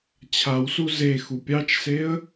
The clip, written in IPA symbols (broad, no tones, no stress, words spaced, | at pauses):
t͡ɕʰawsu zexu pʲɑt͡ʃseə̯